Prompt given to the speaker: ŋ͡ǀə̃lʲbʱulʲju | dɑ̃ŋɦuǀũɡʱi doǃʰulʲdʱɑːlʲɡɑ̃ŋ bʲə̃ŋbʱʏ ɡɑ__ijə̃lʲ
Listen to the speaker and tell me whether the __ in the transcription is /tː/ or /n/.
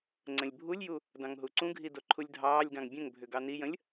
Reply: n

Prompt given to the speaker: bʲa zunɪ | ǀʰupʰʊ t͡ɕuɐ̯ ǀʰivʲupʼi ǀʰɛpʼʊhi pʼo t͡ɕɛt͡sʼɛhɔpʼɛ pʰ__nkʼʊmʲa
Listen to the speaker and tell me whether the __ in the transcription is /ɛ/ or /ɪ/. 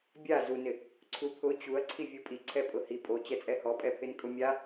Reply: ɪ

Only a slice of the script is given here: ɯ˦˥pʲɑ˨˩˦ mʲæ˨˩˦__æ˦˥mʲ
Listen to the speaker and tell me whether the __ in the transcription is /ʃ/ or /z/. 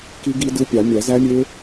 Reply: z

